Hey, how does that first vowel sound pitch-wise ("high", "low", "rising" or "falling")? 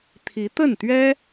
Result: rising